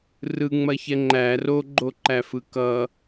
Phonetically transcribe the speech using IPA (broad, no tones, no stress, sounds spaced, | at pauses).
r ɯ ŋ͡m ɐ ç ɛ ŋ͡ǃ æ r o ɡ͡ǃ o ǃ æ f ɯ k ʌ